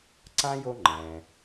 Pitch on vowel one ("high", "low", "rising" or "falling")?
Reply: high